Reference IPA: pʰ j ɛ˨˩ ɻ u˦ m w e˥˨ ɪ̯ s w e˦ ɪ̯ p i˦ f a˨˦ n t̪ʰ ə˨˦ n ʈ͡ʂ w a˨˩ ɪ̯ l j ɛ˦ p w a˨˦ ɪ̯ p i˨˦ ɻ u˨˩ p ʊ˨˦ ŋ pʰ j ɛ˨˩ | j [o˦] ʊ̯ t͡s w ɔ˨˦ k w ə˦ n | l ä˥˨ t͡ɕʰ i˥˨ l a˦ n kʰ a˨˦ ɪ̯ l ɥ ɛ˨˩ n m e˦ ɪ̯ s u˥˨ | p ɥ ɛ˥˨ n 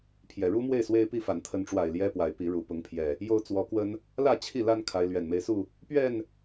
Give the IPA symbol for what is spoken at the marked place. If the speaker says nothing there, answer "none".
o˦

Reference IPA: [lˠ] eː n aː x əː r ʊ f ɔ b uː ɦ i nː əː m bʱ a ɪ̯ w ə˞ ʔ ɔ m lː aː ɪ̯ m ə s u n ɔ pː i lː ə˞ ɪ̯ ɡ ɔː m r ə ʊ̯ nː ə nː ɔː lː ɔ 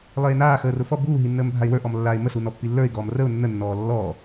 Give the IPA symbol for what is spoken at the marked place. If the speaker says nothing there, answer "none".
lˠ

